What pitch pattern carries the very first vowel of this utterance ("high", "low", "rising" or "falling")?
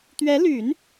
rising